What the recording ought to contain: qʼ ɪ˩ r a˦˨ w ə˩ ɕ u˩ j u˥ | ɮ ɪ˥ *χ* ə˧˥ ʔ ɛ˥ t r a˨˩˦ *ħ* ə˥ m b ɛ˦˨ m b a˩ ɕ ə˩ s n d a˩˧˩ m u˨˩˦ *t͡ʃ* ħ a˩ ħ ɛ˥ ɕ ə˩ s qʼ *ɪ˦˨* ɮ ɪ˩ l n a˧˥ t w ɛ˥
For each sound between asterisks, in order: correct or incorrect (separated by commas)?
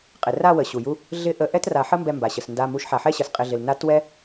incorrect, correct, incorrect, incorrect